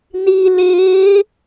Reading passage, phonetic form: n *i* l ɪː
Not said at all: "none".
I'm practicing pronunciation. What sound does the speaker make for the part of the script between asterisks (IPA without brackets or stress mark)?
i